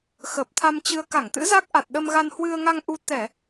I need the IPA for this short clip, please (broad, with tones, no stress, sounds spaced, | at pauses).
x əː˨˩ p̚ t̪ʰ a˧ m t͡ɕ ɨ˧ ə̯ k a˧˩ ŋ t̪ ɨ̰˧˥ z a˦˥ k̚ ʔ a˨˩ t̚ ɗ ə˧ m ɣ a˧ n h w ɨ˧ ə̯ ŋ a˧ ŋ ʔ u˧ t̪ ɛ˧˩˨